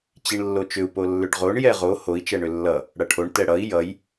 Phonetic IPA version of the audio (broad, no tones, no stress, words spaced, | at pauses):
t͡ɕiɳlːot͡ʃʏu̯ polːʏɖʁoɳ jɛʁo hoi̯ t͡ʃɛɳʏlːʌ | ɽʌʈʰoɳ tɛɽʌi̯ jʌj